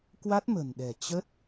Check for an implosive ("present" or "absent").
present